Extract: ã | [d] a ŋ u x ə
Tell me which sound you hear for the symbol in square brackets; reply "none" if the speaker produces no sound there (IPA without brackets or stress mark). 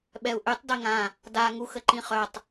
d